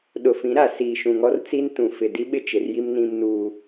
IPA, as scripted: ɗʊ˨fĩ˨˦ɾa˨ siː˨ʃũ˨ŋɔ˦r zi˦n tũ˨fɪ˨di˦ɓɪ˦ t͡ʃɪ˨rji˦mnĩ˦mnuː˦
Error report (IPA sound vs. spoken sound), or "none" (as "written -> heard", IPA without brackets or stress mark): z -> t͡s